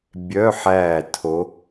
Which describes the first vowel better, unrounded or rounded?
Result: rounded